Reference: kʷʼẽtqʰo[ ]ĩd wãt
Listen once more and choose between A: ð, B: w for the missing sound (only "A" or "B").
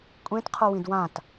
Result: B